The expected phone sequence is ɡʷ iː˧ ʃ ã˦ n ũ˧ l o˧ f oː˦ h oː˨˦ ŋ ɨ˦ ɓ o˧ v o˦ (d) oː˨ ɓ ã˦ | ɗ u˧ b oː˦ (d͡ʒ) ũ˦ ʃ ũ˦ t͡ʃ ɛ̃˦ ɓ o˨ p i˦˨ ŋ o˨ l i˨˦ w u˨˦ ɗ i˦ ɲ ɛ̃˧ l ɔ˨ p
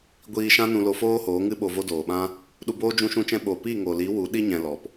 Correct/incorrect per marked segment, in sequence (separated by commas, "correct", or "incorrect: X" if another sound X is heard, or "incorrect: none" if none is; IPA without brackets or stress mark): correct, correct